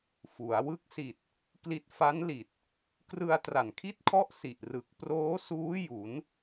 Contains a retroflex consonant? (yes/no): no